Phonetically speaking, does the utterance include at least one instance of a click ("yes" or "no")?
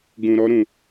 no